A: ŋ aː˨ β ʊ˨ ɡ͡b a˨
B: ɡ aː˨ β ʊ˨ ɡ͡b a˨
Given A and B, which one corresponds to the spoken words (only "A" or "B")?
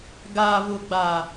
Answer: B